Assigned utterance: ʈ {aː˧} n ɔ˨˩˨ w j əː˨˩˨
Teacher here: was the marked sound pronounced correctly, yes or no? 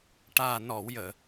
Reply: no